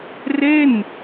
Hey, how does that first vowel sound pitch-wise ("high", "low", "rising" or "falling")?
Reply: falling